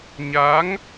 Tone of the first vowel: rising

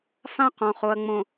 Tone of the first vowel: high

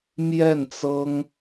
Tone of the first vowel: falling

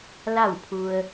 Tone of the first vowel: falling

